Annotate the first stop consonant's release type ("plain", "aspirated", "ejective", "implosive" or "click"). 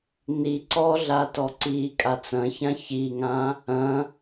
click